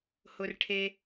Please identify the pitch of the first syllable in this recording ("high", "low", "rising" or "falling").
low